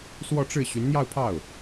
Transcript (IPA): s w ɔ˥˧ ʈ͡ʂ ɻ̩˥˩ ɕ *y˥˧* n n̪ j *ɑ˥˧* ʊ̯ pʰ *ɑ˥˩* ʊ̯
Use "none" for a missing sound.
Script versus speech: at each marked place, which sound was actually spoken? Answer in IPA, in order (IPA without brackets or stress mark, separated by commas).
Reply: y˧˥, ɑ˥˧, ɑ˥˩